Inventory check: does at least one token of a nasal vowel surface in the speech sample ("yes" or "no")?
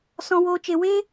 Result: yes